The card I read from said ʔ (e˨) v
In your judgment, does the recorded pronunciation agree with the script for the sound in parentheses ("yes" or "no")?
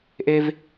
no